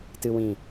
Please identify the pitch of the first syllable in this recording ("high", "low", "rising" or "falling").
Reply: low